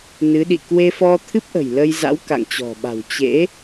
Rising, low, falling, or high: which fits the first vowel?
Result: rising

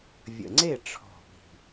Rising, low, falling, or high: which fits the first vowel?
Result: low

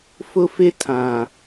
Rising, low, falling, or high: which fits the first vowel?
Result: high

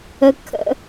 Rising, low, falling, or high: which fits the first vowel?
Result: low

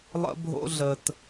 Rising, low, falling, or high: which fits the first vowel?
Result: high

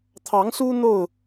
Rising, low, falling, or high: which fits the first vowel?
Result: rising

